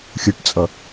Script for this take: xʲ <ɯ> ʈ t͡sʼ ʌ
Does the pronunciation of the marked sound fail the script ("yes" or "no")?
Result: no